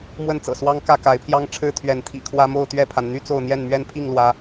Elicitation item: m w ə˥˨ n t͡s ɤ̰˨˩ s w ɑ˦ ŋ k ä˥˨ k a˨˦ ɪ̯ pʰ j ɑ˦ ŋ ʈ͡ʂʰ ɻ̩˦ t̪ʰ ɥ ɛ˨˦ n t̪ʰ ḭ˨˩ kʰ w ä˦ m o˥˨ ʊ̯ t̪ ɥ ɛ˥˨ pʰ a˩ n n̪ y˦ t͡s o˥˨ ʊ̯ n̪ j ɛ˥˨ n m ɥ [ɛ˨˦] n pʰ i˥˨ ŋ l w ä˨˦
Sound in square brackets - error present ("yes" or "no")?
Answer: yes